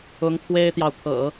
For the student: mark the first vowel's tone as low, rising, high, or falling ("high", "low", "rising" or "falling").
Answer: rising